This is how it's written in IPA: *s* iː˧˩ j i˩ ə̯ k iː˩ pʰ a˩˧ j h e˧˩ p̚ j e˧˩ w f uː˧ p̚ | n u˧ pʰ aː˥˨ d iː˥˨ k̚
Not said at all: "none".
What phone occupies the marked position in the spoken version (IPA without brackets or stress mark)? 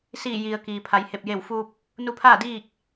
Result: s